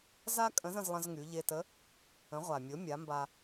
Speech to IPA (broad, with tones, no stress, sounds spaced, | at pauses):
z a˥ kʼ ə̃˧˥ z ə̃˧ z lˠ ə̃˧ z ŋ y˩˧ ʎ e˧ t ə˧˥ | ə̃˩˧ ʁʷ a˩ mʲ o˩˧ mʲ a˩˧ m b a˧